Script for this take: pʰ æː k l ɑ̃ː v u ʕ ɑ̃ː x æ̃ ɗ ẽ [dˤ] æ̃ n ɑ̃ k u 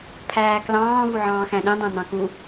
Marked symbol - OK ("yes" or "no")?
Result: yes